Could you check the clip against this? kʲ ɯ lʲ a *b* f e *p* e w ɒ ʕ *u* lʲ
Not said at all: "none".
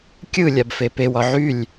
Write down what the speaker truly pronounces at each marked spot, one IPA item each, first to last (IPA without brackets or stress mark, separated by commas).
b, p, y